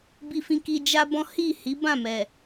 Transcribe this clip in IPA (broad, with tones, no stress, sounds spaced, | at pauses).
b i˧ f ĩ˧ k i˧ d͡ʒ a˦ b ɔ̃˦ h i˦˨ h i˨˦ b ã˦˨ m ɛ˨